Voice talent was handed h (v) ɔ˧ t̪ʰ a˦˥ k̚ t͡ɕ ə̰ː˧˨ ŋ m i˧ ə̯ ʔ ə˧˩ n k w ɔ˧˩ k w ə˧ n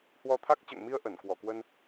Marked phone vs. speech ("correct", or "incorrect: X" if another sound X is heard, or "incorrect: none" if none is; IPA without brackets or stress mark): incorrect: w